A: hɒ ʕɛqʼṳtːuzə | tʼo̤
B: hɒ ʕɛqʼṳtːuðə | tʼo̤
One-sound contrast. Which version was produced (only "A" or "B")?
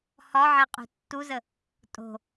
A